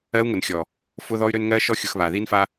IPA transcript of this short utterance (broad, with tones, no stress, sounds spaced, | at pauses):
ɜ˧ u̯ ŋ ʊ˨ n xʲ ɔ˨ | f ʊ˧ ð ɔ˧ y̯ ɾ ø˧ n ŋ ɜ˧ ʃ ɔ˧ xʲ ʊ˨ x β a˨ ð i˧ n f a˧